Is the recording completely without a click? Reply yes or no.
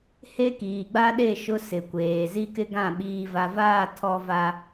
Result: yes